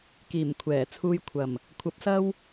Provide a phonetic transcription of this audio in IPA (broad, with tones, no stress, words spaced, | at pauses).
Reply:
kiː˨˩mkʷʰɛː˨˩t͡sʰuː˧j kʷʰɐ˨˩m | kʷʰɐ˨˥p̚sɐ˥w